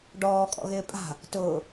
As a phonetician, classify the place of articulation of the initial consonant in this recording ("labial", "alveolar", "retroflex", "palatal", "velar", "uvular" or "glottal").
retroflex